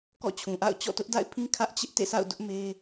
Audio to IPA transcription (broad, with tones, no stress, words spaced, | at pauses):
kɔ̰˦˨ t͡ɕʰũ˨ ʔa̰˦˨ʊ̯ t͡ɕɔ̰˦˨tʊ˦ʔda̰˦˨ɪ̯pʰĩ˦ kʰä˦ʔt͡ɕɪ˦ʔ tḛ˦˨sa̰˦˨ʊ̯ dʊ˦ʔme˦